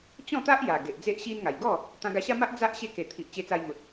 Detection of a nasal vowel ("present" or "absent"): present